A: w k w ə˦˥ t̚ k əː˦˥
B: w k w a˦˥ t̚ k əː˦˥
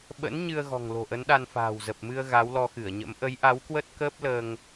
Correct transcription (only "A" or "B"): A